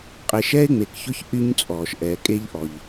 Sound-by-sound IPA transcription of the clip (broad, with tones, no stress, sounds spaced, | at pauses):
qʼ e˨ ʃ ɛː˦ ɪ̯ ŋ͡m e˨ k ç ʊ˦ ç ʔ y˦ ɲ t͡sʼ ɔː˨ ʃ ʔ ɛː˨ kʼ e˦ ʎ ʔ ɔ˨ ʎ